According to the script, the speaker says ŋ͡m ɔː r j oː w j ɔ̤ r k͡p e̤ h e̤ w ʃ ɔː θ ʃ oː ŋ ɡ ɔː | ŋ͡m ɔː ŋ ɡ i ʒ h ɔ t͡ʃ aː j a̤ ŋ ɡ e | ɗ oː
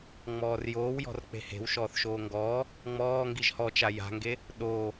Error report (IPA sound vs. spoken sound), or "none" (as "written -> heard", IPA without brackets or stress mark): aː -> a